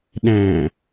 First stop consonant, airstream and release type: implosive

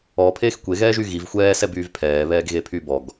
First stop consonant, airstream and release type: aspirated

